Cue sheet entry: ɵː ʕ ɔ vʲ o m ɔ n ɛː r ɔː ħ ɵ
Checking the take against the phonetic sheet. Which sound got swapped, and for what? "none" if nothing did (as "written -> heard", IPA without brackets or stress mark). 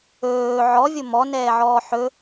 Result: r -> ʕ